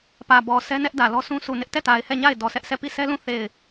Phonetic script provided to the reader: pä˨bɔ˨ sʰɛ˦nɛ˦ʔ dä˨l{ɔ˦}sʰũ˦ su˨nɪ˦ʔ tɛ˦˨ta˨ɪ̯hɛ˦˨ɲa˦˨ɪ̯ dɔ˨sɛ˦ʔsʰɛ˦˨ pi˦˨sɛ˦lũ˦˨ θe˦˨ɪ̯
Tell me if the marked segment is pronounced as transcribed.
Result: yes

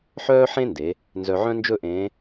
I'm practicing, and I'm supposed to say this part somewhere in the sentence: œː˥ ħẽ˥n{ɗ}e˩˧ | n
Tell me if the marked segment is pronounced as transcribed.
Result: no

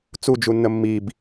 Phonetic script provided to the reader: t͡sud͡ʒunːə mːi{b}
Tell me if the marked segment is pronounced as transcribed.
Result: yes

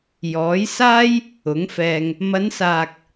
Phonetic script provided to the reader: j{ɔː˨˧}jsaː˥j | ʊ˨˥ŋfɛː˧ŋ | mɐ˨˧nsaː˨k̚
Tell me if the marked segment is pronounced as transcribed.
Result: no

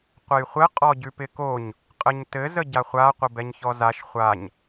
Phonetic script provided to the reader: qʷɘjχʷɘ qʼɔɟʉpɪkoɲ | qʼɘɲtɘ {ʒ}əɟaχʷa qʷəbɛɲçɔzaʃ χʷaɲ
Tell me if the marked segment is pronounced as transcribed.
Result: no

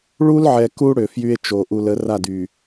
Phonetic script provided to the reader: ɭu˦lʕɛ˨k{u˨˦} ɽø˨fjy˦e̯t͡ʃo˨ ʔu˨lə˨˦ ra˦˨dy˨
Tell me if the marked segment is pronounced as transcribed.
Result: no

